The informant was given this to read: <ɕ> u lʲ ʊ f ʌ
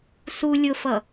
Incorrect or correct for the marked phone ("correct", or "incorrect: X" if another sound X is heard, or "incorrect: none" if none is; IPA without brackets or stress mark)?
incorrect: s